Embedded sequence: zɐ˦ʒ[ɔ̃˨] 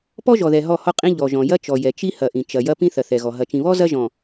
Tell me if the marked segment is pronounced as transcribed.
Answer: yes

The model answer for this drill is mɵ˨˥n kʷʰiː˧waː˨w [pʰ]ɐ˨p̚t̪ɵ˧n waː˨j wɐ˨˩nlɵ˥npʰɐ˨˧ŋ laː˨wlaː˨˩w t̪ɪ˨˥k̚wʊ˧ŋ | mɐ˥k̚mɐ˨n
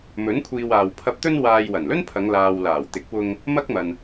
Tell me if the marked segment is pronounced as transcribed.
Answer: yes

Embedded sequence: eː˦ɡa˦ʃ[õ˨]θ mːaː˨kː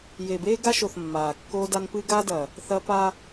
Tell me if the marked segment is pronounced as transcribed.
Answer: no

